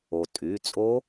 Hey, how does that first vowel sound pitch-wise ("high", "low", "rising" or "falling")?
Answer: low